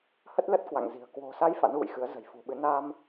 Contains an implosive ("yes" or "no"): yes